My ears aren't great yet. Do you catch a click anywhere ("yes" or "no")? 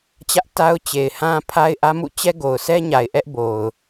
no